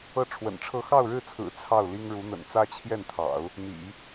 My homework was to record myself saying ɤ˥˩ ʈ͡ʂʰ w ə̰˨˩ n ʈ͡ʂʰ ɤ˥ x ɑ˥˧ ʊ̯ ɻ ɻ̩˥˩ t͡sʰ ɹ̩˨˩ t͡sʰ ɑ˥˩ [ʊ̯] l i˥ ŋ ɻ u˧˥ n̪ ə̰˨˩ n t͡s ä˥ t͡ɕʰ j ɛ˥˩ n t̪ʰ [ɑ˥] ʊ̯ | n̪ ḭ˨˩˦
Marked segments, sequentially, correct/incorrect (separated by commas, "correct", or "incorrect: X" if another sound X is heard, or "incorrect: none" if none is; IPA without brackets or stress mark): correct, incorrect: ɑ̰˨˩˦